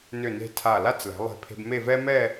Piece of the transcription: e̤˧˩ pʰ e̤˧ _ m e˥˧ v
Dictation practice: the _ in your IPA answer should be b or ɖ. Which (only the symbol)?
b